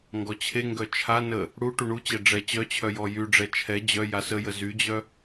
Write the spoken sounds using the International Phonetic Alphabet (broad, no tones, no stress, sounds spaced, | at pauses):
ŋ ɡ ɔ t͡ɕʰ e ŋ ɡ œ t͡ʃʰ a n ə | ɽ u ʈ u ɳ u t͡ɕ ɛ ɖ͡ʐ ɛ t͡ɕ œ t͡ɕʰ œ j ɔ j y ɖ͡ʐ ɛ t͡ʃʰ ɛ d͡ʑ œ j a s ə j ə z y d͡ʑ œ